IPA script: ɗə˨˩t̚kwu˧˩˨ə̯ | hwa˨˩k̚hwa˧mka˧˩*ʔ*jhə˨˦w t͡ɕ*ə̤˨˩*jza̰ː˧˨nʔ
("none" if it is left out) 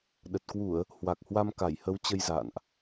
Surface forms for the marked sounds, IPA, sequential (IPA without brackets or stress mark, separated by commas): none, ə˧